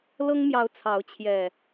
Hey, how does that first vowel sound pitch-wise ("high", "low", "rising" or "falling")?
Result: high